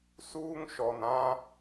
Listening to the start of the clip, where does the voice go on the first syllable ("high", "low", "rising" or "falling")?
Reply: high